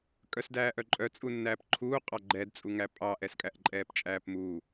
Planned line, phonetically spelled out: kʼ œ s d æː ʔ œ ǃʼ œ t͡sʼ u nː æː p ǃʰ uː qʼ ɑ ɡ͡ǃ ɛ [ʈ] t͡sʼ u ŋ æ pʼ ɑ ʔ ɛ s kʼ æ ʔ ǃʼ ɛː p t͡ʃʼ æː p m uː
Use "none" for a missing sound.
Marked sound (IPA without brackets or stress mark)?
d